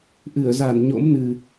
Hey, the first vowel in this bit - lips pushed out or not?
no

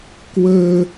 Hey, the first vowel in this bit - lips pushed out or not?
no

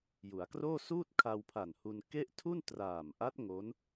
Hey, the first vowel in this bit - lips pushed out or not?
yes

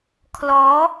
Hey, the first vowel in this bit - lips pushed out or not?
yes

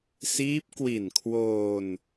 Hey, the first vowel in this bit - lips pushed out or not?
no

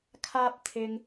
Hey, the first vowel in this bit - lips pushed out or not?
no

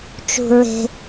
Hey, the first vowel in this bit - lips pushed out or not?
yes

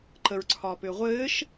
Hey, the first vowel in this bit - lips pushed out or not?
no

